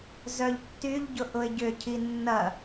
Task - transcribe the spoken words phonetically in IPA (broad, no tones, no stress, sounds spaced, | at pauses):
z œ ʎ tː y ʎ ɟ ʊ ʔ ʊ ɪ̯ ɟ ʏ cʰ i nː ɐ